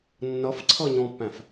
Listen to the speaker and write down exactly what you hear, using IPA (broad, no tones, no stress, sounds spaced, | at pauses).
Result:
nː ʌ f ǀʰ ʌ ɲ ɔ̃ pː æ̃ f